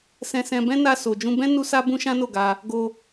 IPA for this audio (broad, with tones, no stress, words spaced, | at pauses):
sɛ̃˧sɛ̃˧bɛ̃˦ na˧ so˨d͡ʒũ˧bɛ̃˦ nu˦sa˦ bũ˦ʃã˦no˦˨ɡa˧ | ɡo˧